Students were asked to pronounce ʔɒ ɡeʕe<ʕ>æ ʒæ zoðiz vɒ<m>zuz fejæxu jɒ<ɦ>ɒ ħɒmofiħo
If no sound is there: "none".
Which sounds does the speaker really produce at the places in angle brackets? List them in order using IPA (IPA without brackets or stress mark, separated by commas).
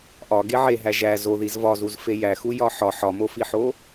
ɦ, none, ħ